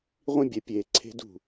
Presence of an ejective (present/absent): absent